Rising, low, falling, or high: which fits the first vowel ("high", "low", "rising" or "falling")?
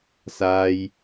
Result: high